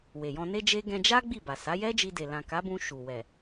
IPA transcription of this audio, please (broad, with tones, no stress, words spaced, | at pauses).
we˨jɔ̃˧ne˦d͡ʒe˦ ɡɛ̃˧d͡ʒa˦ ɡ͡bi˦˨ba˨ sa˨˦jɛ˦d͡ʒi˧de˨ lã˨ka˨˦bũ˧ ʃu˨ wɛ˨